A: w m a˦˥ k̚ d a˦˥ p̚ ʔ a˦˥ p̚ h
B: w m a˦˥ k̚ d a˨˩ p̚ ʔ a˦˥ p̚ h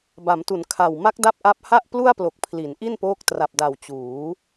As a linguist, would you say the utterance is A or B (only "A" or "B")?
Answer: A